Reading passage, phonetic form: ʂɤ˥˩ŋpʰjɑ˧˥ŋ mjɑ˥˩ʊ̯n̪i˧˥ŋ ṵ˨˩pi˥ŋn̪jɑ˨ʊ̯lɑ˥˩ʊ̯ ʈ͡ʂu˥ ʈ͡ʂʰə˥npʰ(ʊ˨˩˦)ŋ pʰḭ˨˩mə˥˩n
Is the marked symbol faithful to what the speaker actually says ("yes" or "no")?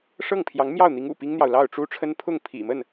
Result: no